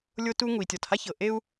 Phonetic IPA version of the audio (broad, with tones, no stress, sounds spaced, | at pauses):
lʲ o˥ t u˥ ŋ u˩ i̯ tʲ ɔ˩ t h a˥ ç ɤ˩ ʔ e˥ u̯